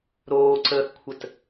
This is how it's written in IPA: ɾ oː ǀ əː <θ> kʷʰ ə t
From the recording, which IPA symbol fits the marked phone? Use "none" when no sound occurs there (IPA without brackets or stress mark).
θ